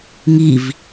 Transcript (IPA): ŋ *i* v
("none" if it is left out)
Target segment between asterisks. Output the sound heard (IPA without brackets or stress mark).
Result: i